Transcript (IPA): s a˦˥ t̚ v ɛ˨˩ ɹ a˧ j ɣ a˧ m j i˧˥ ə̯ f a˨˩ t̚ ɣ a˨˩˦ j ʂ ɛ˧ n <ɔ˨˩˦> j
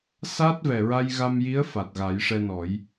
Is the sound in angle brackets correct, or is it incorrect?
correct